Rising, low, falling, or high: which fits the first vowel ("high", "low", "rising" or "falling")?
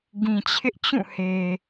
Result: low